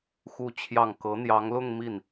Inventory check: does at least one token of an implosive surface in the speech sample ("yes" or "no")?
no